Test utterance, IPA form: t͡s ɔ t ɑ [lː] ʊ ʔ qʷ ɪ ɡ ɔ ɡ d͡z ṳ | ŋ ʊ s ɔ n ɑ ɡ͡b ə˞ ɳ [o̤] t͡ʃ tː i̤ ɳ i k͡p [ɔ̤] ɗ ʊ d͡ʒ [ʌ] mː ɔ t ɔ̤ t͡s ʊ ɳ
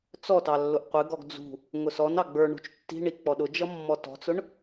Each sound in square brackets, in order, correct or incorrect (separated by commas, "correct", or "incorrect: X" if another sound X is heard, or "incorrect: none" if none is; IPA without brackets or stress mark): correct, incorrect: ṳ, incorrect: ɔ, correct